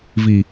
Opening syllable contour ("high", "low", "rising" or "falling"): low